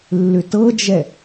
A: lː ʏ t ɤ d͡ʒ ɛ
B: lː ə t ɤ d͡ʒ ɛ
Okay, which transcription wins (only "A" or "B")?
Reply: A